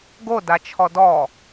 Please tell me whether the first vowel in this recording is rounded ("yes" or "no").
yes